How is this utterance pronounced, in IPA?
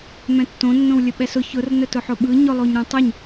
m ɛ̃ tː õ nː õ w lʲ ə ɓ ɛ s ʊ ç ʊ r n ə t ʊ ħ ʊ ɓ ɯ ɲ ʊ lˠ o ɲ ɾ õ tˤ ə ɲ

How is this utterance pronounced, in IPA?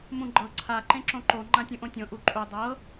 m ũ ɡ͡ǃ ɤ ǀʰ a ǃ ẽ ǁ õ ǃ o ŋ͡ǃ ã tʲ ũ ʔ õ tʲ õ ʔ u ǃʼ u dˤ ɤ

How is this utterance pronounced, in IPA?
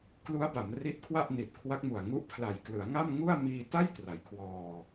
k l u˦˥ a̯ b a˩˦ m r i˦˥ t̚ kʰ w a˥˩ ʔ n i˨˩ t̚ kʰ w a˦˥ k̚ m u˨˩ a̯ ŋ u˦˥ ʔ pʰ l a˨˩ j k l ɯ˩˦ a̯ ŋ a˥˩ m ŋ u˥˩ a̯ m iː˧ t a˥˩ j t r a˩˦ j kʰ w ɔː˧

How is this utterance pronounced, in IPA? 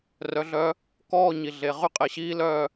r œ˨˥ ɮ œ˦˥ | k ɔː˥˧ ɲ i˨ ɮ e˨ ʁ y˦˥ qʼ e˨ ɕ iː˦˥ l œ˥˧

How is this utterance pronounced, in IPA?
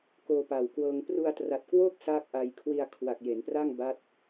k oː˧ p a˨˩ w k w ɤː˧ ŋ p r u˧ a̯ t r a˨˩ t̚ k w oː˥˩ k̚ s aː˥˩ k̚ ʔ a˧ j kʰ w i˧ a̯ kʰ w a˨˩ k̚ j e˩˦ n p r a˥˩ ŋ b a˦˥ t̚

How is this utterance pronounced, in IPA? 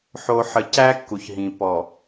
ħ o˨ ħ ə˨ c æ˦ kː u˨ ç ɦ ĩ˨ p ɔ˨

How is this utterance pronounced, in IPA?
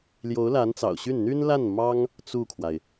l j o˧˥ ʊ̯ l a˧˥ n t͡s ɑ̰˨˩ ʊ̯ ɕ y˥˩ n n̪ y˥ n l a˥˩ n m ɑ˥ ŋ | t͡s u˥˩ kʰ w a˩ ɪ̯

